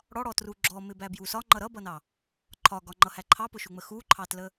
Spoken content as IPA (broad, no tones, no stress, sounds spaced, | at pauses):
ɽ ɔ ɽ ɔ t r u ɡ͡ǁ ɔ m ɪ b æ b j u s ɒ ŋ͡ǃ ʌ ɾ ʌ b ʌ n ɑ | ǃʰ ɒ ɡ ɒ ŋ͡ǃ ʌ h æ ǃʰ ɑ p ʊ ʃ u ŋ͡m ə x u ǃʰ ɑ t l ə